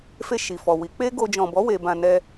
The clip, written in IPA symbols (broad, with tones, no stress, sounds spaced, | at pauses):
f e˧ ʃ i˨ f ɔ˨ w i˨˦ k͡p e˦ ɡ o˧ d͡ʒ ɔ̃˨ b ɔ˨˦ w e˧ b ã˧ n ɛ˧